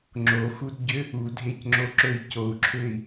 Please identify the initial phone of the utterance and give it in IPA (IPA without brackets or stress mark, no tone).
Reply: ŋ͡ǁ